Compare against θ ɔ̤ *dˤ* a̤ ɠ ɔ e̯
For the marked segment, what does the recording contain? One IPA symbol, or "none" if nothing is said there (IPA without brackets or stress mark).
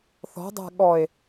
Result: dˤ